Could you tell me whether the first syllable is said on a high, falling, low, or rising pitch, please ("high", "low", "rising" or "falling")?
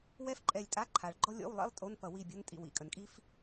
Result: high